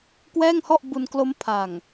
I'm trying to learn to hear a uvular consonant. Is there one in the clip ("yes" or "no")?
no